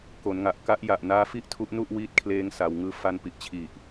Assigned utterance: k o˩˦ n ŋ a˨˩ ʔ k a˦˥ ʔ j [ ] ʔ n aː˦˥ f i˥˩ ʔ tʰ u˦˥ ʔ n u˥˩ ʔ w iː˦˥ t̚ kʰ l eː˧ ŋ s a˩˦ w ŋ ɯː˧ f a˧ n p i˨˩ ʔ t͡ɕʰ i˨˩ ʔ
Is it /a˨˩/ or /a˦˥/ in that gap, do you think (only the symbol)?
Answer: a˨˩